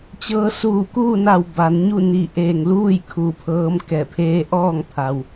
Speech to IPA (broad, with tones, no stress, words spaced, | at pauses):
t͡ɕɤː˧ suː˧˩kuː˥˨na˧˩w ba˩˧nɲu˥˨ ni˧˩ ʔeː˧˩ŋluː˥˨j kʰu˧˩pʰɤː˧˥m kɛː˧˩pʰeː˧ ʔɔː˥˨ŋt̪ʰa˩w